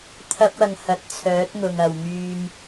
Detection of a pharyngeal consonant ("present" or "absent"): absent